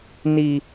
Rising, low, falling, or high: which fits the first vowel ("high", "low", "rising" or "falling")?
low